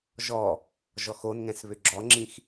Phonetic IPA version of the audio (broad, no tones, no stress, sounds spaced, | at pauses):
ʒ ɔ | ʒ ɔ x o n ŋ ɛ̃ s β ʏ ɡ͡ǁ ɔ ŋ͡ǁ ĩ x